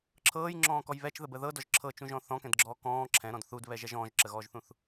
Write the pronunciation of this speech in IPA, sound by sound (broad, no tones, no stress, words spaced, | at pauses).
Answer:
ǁʰɤːjŋ͡ǁɔ̃ːkɔj βɛt͡ʃðəbə ðɤdɔʒ ǁʰɤt͡ʃũʒɔ̃ θɔ̃kɛ̃dɡ͡ǁɔː kɔ̃ː ǁʰɛ̃ɾɔ̃d θudβɛʒɛʒ ɔ̃ːʒǁəɣɔːʒθũθ